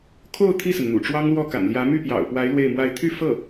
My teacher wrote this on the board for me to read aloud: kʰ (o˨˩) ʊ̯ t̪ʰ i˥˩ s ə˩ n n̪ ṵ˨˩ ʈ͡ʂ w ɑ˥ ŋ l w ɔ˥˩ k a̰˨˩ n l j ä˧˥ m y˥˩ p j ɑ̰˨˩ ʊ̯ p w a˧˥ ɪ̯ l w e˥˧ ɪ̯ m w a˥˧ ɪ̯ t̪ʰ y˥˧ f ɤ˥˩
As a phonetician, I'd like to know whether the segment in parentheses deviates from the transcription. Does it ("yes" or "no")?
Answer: yes